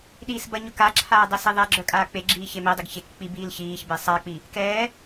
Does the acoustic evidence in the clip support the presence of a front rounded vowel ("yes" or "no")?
yes